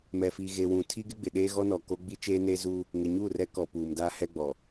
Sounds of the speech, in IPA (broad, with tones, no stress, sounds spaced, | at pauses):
m ɛ˨ f i˨ ɣ e˨ w ũ˨ tʰ i˦ ɡ ɪ˦ ɡ͡b ɪ˨ ɗ eː˦ ɣ ɔ˦ n ɔ˨ k o˦ ɡ͡b i˦ t͡ʃ eː˦ n eː˦ z uː˦ | ŋ ɪ˨ ɲ uː˦˨ r ɛ˦ k ɔ˨ p uː˨ m d aː˦ h ɛ˦ ɡ͡b ɔ˨